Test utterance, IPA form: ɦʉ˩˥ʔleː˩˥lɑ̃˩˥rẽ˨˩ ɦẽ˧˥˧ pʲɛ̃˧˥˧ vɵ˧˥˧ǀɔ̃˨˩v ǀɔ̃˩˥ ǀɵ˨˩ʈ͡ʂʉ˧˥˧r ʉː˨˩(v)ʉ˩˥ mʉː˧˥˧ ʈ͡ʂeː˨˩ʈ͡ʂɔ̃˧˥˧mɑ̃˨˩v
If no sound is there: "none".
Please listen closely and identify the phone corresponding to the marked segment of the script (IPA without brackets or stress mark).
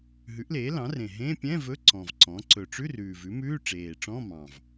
v